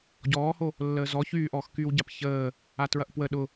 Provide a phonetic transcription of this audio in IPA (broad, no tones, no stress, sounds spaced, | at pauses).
ɟ ɔː h o | lː əː z ɔ ç yː ʔ ɔː x k yː w ɟ a p ç əː | a t ɹ ɐ ʔ p w ə ɗ ʊ